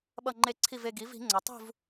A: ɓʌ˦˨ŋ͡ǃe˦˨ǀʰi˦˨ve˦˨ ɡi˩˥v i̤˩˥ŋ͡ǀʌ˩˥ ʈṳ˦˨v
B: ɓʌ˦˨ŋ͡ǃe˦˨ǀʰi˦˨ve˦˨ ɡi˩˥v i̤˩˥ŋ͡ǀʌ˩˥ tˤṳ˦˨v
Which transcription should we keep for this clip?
B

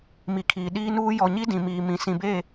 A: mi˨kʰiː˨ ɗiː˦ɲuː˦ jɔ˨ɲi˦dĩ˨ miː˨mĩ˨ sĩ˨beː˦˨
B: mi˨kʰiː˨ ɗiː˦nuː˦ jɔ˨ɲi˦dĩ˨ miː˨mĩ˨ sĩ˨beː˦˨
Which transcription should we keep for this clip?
B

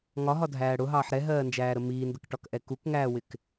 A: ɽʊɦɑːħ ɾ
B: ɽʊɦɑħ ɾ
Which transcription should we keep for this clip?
A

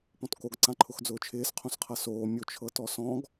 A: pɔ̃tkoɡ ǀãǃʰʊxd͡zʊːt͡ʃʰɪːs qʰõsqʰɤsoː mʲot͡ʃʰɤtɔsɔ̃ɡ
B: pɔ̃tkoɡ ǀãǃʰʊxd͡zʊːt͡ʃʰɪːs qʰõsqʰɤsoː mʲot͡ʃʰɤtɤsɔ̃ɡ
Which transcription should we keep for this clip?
A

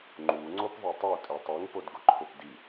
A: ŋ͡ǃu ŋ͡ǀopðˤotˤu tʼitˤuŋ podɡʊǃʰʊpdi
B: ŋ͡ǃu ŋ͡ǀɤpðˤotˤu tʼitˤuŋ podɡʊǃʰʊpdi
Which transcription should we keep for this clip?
A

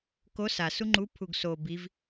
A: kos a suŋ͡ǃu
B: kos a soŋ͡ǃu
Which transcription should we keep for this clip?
A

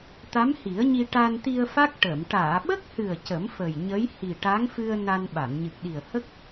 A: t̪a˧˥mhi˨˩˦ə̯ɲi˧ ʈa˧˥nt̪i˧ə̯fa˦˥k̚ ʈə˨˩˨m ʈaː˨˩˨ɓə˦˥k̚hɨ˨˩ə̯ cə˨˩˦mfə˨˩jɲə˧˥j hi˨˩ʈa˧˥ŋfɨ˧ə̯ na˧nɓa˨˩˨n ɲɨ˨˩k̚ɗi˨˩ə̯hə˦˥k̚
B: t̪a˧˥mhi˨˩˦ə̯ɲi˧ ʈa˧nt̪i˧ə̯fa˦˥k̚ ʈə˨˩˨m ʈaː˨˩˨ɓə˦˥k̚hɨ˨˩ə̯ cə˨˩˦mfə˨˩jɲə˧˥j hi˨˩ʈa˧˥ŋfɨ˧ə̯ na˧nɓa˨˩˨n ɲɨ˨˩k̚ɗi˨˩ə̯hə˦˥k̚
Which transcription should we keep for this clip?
B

